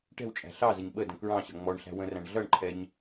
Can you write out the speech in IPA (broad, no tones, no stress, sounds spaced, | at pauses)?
ʈ ɛ̤ w t͡ʃʼ æ̤ ɬ ɑ z ə ɲ ɓ ə d ə̃ k ɹ ɑ̃ ɕ ʌ ŋ͡m ɔ ɳ ɬ æ̤ w ə̃ r æ̃ ɳ ɮ ʌ ɳ ǃʰ ɛ ɲ